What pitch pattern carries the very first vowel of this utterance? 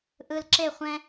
low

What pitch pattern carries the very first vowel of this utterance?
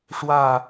falling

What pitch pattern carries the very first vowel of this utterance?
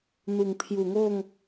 low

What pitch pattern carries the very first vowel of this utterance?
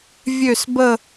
falling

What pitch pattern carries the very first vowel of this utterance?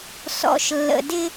low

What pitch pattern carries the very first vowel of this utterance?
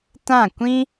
falling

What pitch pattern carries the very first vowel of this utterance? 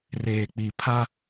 low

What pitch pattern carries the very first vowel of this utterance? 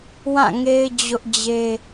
falling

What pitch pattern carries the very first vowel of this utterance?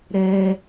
high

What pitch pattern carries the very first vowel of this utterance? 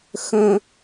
high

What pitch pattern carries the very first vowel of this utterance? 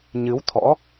rising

